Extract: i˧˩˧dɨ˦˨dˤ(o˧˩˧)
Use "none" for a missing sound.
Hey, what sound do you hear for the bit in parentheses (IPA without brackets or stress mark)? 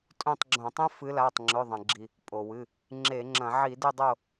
o˦˨